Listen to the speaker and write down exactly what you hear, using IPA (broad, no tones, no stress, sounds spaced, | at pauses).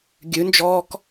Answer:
ɡʲ ʉ n d͡ʒ ɔː k